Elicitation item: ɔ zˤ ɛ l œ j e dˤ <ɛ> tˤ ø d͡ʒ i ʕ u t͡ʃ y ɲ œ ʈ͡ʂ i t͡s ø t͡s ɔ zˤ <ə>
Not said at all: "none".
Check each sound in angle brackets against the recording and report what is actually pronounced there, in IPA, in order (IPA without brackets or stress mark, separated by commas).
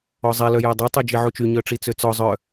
ɛ, œ